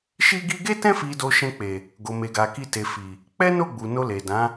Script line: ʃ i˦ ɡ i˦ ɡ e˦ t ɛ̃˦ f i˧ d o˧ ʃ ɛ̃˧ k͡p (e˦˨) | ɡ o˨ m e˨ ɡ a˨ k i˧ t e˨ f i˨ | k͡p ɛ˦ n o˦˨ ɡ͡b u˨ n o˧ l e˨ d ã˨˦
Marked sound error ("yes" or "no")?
yes